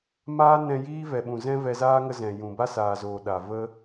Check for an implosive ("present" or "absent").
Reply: present